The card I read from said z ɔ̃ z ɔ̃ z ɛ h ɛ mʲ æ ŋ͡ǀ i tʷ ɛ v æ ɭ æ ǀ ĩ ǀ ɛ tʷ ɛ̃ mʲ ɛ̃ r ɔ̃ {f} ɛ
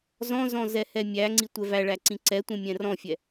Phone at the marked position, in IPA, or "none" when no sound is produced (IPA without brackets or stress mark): fʲ